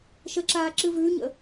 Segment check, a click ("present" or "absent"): present